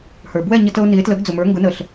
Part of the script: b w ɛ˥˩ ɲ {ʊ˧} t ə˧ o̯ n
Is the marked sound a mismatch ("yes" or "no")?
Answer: yes